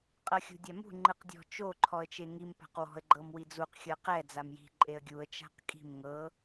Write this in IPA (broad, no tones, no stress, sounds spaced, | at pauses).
qʼ ɤ xʲ ṳ dʲ a m ṳ ŋ͡ǃ ɯ q dʲ ɔ̤ t͡ʃ o ǃʰ ɔ ə̯ t͡ʃ e ŋ i m p a̤ q w ɔ̤ ə̯ ɡ͡ǃ ɤ m w i d͡z u q xʲ ɤ q ɛ d͡z a m j i̤ ǃʼ e ə̯ ɡʲ u ə̯ t͡ʃ a̤ q kʼ i̤ m ŋ ɤ